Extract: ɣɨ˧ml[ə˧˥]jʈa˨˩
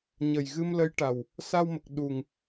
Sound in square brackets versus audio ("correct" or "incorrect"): correct